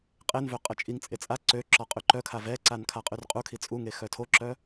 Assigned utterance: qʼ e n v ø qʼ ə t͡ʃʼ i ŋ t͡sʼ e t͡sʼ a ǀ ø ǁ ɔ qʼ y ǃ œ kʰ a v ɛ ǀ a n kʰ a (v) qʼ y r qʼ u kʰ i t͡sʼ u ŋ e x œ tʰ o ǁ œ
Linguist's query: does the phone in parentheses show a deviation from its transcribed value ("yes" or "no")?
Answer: yes